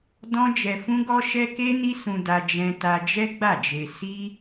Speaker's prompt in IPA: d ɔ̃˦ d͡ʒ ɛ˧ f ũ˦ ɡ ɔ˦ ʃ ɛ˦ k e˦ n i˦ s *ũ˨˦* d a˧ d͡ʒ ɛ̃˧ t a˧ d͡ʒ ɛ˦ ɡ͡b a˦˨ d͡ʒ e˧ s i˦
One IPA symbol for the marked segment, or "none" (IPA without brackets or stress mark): ũ˧